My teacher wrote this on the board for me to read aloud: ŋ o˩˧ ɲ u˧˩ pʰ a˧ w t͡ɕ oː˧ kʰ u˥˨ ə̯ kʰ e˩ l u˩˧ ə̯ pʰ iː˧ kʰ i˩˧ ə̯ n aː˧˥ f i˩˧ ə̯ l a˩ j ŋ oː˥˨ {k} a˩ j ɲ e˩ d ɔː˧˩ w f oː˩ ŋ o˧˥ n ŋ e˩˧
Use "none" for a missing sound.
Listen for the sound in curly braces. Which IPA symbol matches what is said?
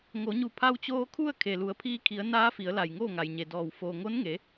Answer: ŋ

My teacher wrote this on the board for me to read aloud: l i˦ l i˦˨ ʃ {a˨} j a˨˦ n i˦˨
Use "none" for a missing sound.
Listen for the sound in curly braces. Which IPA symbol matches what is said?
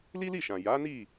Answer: ã˨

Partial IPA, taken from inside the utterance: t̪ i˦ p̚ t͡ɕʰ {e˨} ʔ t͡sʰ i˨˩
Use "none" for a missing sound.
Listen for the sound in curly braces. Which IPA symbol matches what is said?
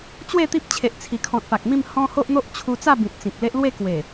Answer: e˨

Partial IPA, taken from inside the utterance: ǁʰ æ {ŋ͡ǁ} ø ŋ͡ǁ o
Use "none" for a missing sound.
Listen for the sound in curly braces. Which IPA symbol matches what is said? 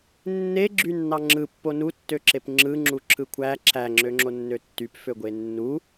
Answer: ŋ͡ǁ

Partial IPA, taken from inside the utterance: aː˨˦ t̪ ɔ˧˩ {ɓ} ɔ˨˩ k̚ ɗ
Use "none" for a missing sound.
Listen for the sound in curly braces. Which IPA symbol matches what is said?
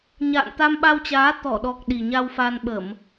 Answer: ɗ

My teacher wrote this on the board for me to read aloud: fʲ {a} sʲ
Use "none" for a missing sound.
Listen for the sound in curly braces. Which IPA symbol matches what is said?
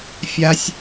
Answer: a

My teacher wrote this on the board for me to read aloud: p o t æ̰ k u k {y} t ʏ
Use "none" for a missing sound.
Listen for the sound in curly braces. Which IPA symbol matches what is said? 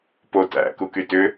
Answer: y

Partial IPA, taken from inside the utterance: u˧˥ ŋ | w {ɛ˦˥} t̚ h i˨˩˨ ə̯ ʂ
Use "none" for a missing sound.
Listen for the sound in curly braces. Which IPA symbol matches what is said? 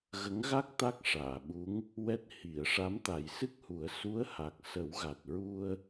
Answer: ɛ˦˥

